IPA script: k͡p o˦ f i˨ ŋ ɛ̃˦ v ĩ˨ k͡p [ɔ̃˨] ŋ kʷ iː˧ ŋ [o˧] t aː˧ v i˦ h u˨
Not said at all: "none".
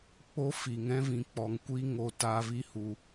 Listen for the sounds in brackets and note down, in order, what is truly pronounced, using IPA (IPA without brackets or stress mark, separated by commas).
ɔ˨, o˧